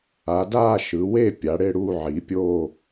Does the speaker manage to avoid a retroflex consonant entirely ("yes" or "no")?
no